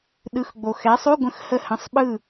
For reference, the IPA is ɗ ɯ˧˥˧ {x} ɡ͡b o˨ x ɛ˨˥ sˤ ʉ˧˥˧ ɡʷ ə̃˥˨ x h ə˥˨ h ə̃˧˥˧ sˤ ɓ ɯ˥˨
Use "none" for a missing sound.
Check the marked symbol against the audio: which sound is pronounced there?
x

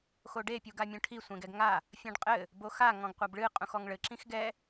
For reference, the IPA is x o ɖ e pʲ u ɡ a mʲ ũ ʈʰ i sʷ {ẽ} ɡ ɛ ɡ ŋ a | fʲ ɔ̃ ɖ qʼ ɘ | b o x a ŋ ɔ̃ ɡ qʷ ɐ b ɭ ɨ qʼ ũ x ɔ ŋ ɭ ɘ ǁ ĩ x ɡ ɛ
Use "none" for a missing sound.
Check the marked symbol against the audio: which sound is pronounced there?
ẽ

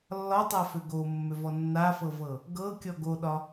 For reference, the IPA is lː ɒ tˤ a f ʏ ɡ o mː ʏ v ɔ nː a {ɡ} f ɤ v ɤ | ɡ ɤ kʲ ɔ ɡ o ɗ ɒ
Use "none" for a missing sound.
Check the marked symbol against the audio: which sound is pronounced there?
none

